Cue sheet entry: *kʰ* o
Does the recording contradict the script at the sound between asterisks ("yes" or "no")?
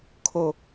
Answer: no